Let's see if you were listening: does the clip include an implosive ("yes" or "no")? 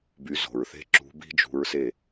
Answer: no